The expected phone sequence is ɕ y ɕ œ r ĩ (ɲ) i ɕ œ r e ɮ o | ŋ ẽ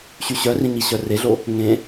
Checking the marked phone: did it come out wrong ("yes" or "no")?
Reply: no